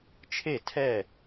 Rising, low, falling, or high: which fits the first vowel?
falling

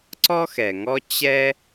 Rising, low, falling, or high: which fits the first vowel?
high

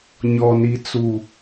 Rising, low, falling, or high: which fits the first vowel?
low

